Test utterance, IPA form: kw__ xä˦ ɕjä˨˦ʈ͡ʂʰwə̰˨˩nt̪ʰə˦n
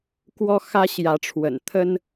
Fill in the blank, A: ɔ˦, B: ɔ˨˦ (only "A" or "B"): A